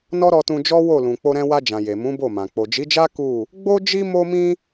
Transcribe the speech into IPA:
n ɔ˦ ɾ ɔ˧ t ũ˧ d͡ʒ ɔ˦ w o˦˨ l ũ˨ k͡p o˧ ɾ ɛ̃˧ w a˧ d͡ʒ ã˨ j e˨ m ũ˨˦ b o˦˨ m ã˨ k͡p o˨ d͡ʒ i˨˦ d͡ʒ a˦ k u˦˨ | ɡ͡b o˦ d͡ʒ i˦ m o˧ m ĩ˧

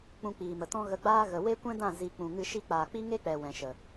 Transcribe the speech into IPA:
k͡p ũ˧ k͡p iː˨ m ə˨ t ɔ̃˦ ɣ ə˧ ɡ͡b aː˦ ɣ ə˨ w e˦ kʷ ɛ̃˦ d ã˦˨ z i˨ k͡p ũ˨ ŋ ɨ˧ ʃ i˧ k͡p aː˨ k͡p i˦ ŋ e˦ k͡p ɛ˨ w ɛ̃˨ ʃ ə˨

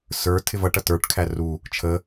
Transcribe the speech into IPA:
s ə˞ tʰ ɪ v ʌ ʈ ʌ t ə˞ ʈ kʰ æ r u | t͡ʃʰ ə

